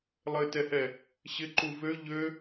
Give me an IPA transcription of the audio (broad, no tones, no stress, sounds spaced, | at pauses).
lˠ ɘ t ɛ h ɛ | ɕ ɪ ǃ u v ø ʎ ø